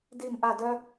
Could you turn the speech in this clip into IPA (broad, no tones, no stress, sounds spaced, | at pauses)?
d i m ʔ a d œ